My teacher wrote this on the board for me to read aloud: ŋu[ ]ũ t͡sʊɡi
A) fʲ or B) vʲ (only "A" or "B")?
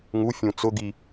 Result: A